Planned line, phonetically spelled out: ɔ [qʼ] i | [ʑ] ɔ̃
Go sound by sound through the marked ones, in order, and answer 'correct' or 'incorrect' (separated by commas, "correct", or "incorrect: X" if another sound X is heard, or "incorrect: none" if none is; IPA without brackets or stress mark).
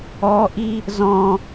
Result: incorrect: ʔ, incorrect: z